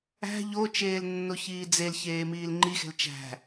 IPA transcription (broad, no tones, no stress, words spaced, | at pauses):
æ̤ ʎot͡ʃeːl nːoçiːd͡zelçeː miːlŋ͡ǃixe̤l t͡ʃæ̤